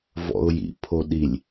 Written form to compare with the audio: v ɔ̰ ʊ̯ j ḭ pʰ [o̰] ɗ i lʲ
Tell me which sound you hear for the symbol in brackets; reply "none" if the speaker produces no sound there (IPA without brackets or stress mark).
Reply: o